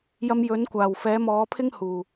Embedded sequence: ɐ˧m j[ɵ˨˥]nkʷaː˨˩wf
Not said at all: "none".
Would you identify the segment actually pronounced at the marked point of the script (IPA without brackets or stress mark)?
ɵ˨˥